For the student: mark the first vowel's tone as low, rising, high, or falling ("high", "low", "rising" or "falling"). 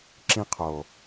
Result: high